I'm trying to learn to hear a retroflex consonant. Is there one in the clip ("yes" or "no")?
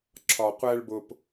yes